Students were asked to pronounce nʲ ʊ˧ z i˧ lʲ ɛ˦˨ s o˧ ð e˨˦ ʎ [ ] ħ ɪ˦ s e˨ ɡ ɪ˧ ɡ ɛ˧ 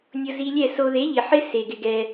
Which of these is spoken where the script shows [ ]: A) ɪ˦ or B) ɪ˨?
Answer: B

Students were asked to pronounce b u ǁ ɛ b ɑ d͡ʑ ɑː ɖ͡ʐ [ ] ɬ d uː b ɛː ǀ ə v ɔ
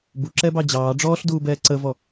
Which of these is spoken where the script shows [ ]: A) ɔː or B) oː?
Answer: A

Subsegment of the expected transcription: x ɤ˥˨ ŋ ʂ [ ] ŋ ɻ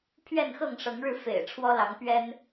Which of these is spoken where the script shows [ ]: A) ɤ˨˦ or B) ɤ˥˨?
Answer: A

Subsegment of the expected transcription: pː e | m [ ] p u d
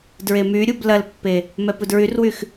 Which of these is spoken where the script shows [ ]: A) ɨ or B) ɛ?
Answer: B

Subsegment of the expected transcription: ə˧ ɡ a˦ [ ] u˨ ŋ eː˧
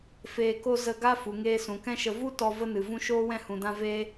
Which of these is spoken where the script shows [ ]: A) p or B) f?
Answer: B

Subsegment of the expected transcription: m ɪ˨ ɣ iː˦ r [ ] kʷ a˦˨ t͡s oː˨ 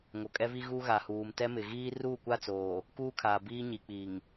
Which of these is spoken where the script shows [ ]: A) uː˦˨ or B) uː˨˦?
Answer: A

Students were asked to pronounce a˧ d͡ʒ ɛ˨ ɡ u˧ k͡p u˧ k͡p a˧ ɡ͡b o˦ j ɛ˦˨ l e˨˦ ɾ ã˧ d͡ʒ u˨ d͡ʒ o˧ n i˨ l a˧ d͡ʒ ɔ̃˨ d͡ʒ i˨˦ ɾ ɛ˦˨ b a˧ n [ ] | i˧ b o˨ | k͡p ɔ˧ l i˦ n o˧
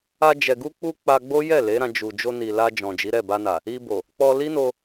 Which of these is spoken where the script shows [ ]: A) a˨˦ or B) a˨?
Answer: B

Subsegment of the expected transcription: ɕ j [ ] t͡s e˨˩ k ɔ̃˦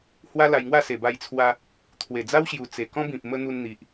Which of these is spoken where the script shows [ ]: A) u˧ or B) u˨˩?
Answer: B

